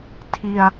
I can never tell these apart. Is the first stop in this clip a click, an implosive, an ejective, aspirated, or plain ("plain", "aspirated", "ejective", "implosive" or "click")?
aspirated